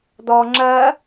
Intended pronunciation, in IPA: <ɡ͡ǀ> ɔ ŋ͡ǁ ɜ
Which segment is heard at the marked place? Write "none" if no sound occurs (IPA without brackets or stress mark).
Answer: d̪